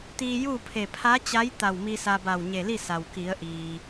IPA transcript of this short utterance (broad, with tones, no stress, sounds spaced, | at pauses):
t̪ iː˧ j uː˥˨ pʰ e˧˩ pʰ a˧˥ t͡ɕ a˧˥ j t̪ a˧˩ w m i˧ s a˧ b a˧˩ w ɲ e˧˩ l i˥˨ s a˩ w k i˩˧ ə̯ ʔ iː˩